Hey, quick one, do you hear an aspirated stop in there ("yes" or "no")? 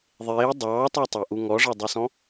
no